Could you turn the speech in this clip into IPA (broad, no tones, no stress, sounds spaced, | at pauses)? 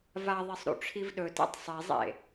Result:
v a ðˤ e sˤ ɾ ṵ ʈ͡ʂʰ i v ɗ ɵ t ḛ tˤ sˤ e zˤ ḛ